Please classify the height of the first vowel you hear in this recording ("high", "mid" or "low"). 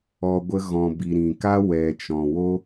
mid